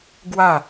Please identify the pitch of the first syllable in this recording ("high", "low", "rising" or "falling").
falling